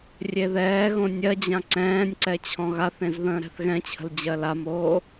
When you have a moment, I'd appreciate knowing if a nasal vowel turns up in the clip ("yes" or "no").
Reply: yes